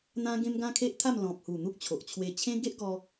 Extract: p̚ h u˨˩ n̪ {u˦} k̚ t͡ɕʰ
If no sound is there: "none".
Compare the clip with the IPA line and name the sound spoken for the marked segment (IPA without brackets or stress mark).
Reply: u˦